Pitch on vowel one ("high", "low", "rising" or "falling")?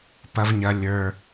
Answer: low